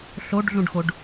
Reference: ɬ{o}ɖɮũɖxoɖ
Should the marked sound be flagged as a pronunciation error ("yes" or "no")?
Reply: no